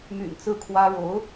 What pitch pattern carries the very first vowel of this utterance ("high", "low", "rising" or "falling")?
low